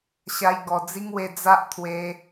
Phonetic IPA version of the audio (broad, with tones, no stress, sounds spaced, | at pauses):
ɕ a˧ j ɡ ɔ˨˩ d͡z i˦ ŋ w e˧ d͡z a˦ ʔ t̪ʰ w e˧